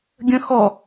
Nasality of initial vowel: nasal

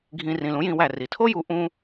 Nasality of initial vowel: nasal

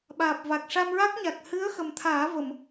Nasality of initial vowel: oral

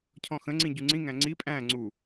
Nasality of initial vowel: nasal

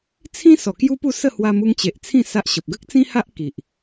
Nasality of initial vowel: nasal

